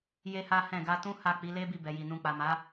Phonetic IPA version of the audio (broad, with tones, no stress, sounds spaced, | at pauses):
j e˦ h a˦ h ɛ̃˦˨ ɡ a˧ t ũ˦ h a˦˨ k͡p i˨˦ l e˦ b i˦˨ b ɛ˨ j i˨ n ũ˨ k͡p a˨ m a˨˦